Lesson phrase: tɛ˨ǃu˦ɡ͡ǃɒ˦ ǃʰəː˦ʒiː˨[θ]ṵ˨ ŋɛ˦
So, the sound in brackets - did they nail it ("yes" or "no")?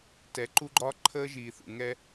yes